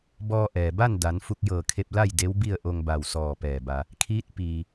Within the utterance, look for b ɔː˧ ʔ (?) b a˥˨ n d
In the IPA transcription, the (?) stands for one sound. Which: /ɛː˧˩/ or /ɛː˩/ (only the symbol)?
ɛː˩